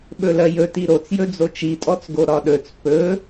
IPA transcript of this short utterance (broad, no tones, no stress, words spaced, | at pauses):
ɓɵlɜjɵ tiɾot͡sjɵ d͡zot͡ʃitʼɔt͡sɡo ɾɒɗɵt͡s pɵ